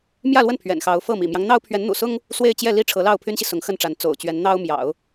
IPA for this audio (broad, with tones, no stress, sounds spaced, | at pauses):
m j ä˥˧ l w ə˥˩ n pʰ ɥ ɛ̰˨˩ n x ɑ˧˥ ʊ̯ f ɤ˥˩ m ḭ˨˩ m j ɑ˦ ŋ n̪ ɑ˥ ʊ̯ pʰ ɥ ɛ˧˥ n n̪ ṵ˨˩ s ʊ˥ ŋ | s w e˥˧ ɪ̯ t͡ɕ j ɛ˥˧ l i˥˩ ʈ͡ʂʰ ɤ˧˥ l ɑ˥˩ ʊ̯ pʰ y˥ n ɕ i˨ s ʊ˧˥ ŋ x ə˥˩ n ʈ͡ʂ a˧˥ n t͡s o̰˨˩ ʊ̯ t͡ɕ ɥ ɛ˧˥ n n̪ ɑ˥ ʊ̯ m j ɑ̰˨˩˦ ʊ̯